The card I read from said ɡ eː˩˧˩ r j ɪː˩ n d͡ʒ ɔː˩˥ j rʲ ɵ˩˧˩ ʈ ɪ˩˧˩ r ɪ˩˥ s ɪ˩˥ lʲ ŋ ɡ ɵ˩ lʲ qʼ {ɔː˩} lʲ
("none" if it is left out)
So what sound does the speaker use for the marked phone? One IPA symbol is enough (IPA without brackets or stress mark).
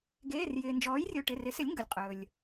ɵː˩